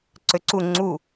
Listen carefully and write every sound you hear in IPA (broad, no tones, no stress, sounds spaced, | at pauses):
ǀ ø ǀ u ŋ͡ǀ u